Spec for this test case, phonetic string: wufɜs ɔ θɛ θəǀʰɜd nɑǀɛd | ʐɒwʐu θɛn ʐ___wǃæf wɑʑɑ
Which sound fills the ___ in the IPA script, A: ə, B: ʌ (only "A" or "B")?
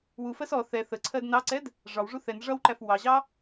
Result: B